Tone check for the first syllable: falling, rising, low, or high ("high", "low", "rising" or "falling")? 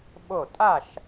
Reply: falling